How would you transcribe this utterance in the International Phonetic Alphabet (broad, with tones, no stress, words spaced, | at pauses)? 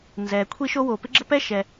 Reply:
nzɛ˩ kʷʰi˥ʃo˥ wo˩ pɪ˥ɡ͡ǁə˥pɛ˥ ʃɛ˩